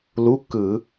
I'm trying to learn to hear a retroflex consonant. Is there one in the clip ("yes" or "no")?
no